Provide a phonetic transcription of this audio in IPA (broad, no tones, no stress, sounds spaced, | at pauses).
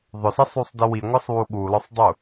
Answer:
ðˤ ʊ s i sˤ u sˤ d i w i ŋʷ ə sˤ w u ɠ u l ɔ sˤ dˤ u